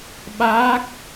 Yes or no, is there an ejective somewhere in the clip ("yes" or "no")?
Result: no